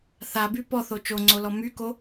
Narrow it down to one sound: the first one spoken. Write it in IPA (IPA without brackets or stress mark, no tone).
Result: θ